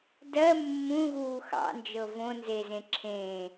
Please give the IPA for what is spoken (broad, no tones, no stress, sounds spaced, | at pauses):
d ɜ mː ũ ɣ uː x ɑ̰ n d͡ʒ ɤ v õ n z e z ẽ ǁʰ ẽ